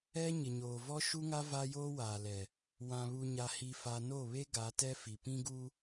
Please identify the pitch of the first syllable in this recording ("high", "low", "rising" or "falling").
high